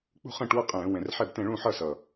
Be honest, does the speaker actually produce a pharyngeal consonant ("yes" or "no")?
yes